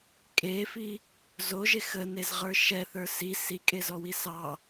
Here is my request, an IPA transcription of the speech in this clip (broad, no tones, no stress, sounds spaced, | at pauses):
kʼ e f i | z o ʒ e x ə n e z ʁ ə˞ ʃ ɛ θ ə˞ s i s i kʼ e z ɔ w i s ɑ